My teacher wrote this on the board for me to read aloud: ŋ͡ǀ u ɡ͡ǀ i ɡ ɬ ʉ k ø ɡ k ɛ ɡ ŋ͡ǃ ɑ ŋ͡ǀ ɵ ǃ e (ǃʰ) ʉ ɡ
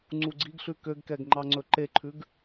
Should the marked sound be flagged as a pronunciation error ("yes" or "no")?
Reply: no